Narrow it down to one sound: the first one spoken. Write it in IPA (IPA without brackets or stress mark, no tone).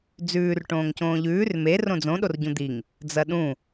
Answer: d͡z